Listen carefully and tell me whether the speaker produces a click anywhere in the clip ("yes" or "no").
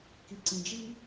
yes